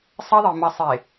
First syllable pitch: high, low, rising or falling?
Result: high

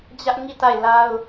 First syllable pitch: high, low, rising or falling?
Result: high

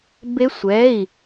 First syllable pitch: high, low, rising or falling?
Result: rising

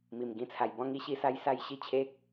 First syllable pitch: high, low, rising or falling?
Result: low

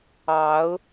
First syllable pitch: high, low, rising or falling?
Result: rising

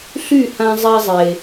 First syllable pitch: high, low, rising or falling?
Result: falling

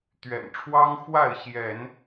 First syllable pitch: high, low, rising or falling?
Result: low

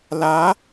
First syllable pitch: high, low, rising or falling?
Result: rising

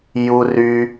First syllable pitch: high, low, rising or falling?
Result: high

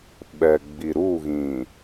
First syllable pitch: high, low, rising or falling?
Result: low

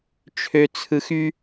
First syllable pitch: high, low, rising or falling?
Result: low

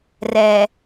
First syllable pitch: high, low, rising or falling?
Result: low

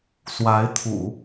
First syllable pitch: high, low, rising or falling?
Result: rising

